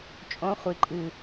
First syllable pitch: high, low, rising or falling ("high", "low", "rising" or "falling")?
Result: rising